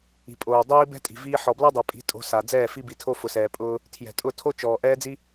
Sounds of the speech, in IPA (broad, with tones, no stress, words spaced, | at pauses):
i̤˨pʼoː˨ dˤiː˦ bɛ̤˦tʼi̤˨viː˧ ħɔ˨bla˦dˤɛ˨pʼi̤˨˦ tʼo̤˧ sa˨ d͡zɛː˦˨ fi˧bi˨tʰo˧ fʊ˨sɛː˨pʼʊː˧ | tʰjɛ̤˨tʼʊ˦˨tʰo˦t͡ʃɔː˨ ʔɛː˦d͡zi˦